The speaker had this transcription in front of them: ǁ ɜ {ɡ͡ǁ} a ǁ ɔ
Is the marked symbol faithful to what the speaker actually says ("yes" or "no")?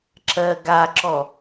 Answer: no